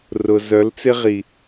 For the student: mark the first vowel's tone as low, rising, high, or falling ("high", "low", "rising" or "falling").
low